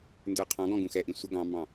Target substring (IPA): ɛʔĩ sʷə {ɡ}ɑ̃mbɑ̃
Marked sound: correct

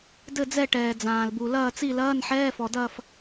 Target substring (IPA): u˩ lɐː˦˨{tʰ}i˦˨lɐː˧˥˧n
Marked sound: incorrect: t͡s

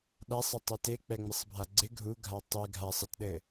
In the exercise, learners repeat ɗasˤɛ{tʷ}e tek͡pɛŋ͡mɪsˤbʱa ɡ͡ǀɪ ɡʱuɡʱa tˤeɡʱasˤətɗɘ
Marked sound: incorrect: tˤ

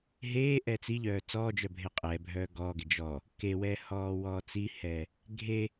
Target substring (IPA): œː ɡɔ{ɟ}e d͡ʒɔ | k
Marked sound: incorrect: ɡ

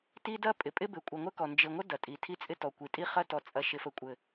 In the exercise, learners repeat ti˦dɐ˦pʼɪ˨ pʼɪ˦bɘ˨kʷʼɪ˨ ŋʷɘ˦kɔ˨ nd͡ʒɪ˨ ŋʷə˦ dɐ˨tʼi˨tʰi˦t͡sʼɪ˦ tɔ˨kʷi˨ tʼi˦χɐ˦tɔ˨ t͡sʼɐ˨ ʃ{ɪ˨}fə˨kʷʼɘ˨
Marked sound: correct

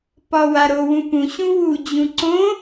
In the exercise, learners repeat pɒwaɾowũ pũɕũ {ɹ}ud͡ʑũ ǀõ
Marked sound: incorrect: w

